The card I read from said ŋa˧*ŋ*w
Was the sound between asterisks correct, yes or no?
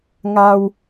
no